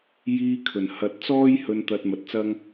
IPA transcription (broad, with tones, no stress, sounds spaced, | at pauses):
j iː˧ kʰ ɵ˨˩ n h ɐ˧ t̚ t͡s ɔː˥ j h ɵ˧ n t̪ ɐ˧ t̚ m ɐ˧ t̚ t͡s ɐ˥ ŋ